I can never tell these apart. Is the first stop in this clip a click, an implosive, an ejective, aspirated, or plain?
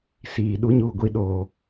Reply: implosive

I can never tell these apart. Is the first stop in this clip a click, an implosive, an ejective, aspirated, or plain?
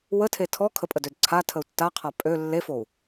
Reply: aspirated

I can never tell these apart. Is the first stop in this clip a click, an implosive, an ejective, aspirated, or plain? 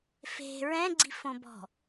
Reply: click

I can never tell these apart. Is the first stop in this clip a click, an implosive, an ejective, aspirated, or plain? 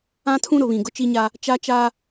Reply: aspirated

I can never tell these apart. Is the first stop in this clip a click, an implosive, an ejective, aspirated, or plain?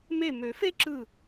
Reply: click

